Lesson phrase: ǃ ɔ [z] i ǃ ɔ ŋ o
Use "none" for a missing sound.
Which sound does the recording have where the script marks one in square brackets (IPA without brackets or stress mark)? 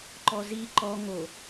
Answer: z